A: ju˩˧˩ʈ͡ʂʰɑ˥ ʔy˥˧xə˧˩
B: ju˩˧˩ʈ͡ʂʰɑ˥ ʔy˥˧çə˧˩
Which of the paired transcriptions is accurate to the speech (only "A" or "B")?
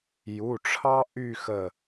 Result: A